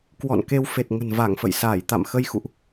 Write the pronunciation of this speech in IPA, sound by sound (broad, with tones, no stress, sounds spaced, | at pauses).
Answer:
k w ɔ̰˧˨ n k e˧ w f e˨˩ t̚ ŋ ə̤˨˩ n v a˧˩ ŋ f ə̰˧˨ j s aː˧˩ j t̪ a̰˧˨ m x ə˧ j x ṵ˧˨ ʔ